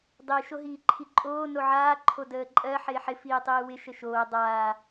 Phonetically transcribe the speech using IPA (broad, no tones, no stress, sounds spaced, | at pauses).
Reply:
dˤ i ʃ o ɦ iː ǃʰ i ǃʼ oː n o ʕ aː ǃʰ o d əː ǃʼ ɜ ħ ɪː ħ ɪ f iː tˤ iː w ɪ ʃ ə ʃ oː dˤ aː